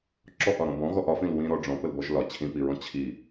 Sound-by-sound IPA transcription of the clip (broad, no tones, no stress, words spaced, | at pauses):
ǁɔʔɒɾɔ̃ bɔ̃ɣɔʔ ɒfĩl wĩɾɔ ɖ͡ʐɔ̃pəlbɔʒ lɒ t͡ɕʰĩpiɹɔ̃ t͡ɕʰi